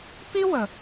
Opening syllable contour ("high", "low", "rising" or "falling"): high